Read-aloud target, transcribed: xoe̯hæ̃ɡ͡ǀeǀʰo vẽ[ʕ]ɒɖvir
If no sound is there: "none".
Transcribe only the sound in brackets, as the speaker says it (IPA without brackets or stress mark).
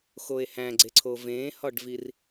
h